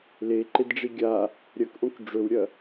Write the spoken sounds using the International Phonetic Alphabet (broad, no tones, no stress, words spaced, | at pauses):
leǃedɖ͡ʐi ɡʲa | ɾʲɐkʔõk ɖ͡ʐɵwɾʲɐ